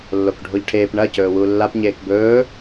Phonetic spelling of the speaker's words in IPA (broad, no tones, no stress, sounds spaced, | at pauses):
lː o k ɖʱ o ʎ ʈʰ eː p ɳ ɐ c ɵː w uː lː a p ɲ eː k b ɵː